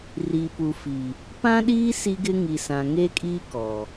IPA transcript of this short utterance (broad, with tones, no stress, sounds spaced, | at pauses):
r i˨ p u˨ f i˨ | p ã˦ ɗ iː˦ s i˦ ɡ ɪ˦ ŋ i˨ s ã˨ ŋ e˦ kʼ iː˦ k ɔ˨